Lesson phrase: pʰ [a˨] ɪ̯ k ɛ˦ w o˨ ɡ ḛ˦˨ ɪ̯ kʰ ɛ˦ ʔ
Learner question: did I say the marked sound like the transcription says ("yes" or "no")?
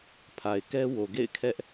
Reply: yes